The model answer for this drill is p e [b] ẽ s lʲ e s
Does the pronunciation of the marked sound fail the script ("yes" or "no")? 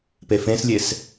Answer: yes